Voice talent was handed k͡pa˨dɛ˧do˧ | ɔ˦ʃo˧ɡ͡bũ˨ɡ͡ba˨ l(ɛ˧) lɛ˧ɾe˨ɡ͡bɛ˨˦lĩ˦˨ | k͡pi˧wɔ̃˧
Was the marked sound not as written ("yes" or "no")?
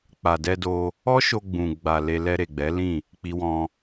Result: yes